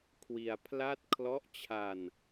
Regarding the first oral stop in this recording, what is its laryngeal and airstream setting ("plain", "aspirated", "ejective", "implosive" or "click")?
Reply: aspirated